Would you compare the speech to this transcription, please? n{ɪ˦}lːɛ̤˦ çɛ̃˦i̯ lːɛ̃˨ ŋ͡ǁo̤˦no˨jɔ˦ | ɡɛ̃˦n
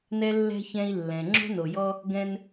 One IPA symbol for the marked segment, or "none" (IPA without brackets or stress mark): ɛ˦